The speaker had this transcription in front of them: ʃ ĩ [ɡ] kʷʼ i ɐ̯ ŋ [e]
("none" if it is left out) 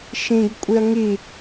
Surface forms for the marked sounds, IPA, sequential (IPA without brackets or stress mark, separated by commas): ɡ, i